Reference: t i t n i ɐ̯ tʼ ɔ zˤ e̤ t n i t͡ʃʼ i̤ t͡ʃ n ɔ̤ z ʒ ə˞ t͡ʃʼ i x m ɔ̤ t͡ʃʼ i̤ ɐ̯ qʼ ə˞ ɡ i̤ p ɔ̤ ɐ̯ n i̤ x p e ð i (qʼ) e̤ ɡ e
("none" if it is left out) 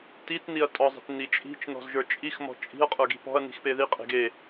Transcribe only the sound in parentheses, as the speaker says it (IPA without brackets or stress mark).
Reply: qʼ